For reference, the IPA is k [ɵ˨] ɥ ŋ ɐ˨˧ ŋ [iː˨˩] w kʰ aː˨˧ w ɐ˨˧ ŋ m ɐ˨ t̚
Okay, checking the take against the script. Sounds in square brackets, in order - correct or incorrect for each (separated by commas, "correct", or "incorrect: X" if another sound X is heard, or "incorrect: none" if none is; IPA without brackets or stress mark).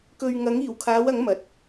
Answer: correct, correct